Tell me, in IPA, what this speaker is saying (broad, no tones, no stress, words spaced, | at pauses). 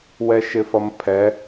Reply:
wɛʃɪfʌmpʰɛ